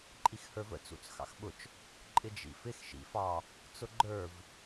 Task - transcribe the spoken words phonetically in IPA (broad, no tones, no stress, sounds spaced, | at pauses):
ǃʼ i x h ə˞ v ə̰ t͡s ṵ t͡s x ɑ̰ x ɓ ʊ t͡ʃ | ǃʼ ɪ d͡ʒ ḭ f ɪ x ʃ ḭ f ɑ | t͡s ʊ ɡ͡ǃ ə˞ v